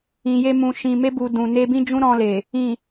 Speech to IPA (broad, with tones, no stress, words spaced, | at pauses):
ĩ˨je˧mũ˨ ʃĩ˨me˧bu˨ dũ˨ne˧bĩ˦d͡ʒũ˦ ɾɔ̃˧le˨ | ĩ˨